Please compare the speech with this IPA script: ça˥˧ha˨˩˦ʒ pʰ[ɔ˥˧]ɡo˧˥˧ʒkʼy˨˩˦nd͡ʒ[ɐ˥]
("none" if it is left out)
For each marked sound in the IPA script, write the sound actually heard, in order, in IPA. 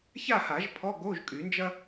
ɔ˧˥˧, ɐ˥

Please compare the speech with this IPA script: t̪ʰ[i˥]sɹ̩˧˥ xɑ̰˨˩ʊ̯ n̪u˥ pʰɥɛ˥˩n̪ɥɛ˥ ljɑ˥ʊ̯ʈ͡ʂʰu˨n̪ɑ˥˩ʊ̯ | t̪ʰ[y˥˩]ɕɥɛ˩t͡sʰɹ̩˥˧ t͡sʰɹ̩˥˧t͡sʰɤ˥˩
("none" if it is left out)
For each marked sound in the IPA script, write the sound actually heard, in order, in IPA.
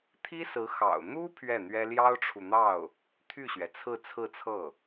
i˥, y˥˩

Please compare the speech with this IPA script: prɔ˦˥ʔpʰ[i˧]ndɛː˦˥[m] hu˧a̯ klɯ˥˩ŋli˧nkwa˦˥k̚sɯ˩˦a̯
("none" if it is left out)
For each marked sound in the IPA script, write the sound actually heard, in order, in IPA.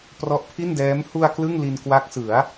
i˥˩, m

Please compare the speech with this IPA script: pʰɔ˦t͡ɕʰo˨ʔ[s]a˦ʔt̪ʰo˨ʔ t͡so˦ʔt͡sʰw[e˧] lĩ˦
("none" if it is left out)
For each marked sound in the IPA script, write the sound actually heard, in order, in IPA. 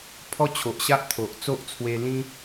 ɕ, e˧

